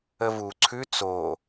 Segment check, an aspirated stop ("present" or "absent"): present